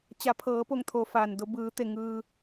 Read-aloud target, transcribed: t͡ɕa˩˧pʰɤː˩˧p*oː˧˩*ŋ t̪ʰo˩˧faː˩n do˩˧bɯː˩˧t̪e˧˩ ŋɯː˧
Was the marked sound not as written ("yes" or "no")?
yes